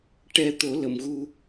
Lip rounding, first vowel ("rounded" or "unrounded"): unrounded